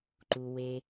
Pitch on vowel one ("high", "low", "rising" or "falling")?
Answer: low